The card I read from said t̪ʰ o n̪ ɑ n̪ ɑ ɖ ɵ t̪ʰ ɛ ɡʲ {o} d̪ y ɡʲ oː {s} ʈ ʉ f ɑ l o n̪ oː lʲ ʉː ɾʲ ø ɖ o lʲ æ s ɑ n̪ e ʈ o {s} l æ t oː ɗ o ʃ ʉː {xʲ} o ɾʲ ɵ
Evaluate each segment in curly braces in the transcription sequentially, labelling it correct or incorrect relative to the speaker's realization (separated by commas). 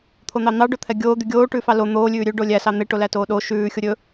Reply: incorrect, incorrect, incorrect, correct